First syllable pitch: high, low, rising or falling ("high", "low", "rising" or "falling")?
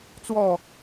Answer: falling